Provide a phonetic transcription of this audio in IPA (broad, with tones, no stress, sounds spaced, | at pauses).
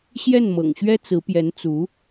ɕ j ɛ˥˩ n m ɤ̰˨˩ ŋ ɕ ɥ ɛ˥ t͡s ɹ̩˧˥ p j ɛ˧˥ n t͡s u˧˥